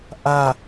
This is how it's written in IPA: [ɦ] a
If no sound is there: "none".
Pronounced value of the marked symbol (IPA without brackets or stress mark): ʔ